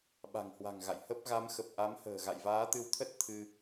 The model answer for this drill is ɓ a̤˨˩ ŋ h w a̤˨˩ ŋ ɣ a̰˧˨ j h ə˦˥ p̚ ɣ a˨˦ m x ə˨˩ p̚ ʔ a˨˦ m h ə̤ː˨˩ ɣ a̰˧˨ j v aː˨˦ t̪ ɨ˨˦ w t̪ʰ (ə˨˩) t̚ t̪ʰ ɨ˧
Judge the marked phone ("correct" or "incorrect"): incorrect